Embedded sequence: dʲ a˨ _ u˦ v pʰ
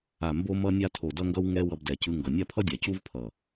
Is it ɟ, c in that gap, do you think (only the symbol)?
c